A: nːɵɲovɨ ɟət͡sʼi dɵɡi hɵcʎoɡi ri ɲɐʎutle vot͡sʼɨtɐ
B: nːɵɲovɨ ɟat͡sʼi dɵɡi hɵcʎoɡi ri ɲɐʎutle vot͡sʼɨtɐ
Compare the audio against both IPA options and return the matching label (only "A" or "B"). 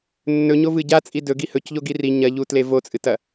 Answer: B